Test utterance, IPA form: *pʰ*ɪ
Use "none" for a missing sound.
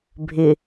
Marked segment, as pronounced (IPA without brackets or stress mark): bʱ